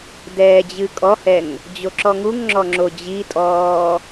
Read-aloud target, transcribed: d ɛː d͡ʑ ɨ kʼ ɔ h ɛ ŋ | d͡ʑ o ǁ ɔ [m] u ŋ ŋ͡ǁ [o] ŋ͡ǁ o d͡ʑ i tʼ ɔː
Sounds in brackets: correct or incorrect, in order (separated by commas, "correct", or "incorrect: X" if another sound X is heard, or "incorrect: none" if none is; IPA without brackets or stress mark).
incorrect: ŋ, incorrect: ɔ